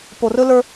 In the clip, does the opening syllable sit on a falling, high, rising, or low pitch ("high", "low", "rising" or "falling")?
low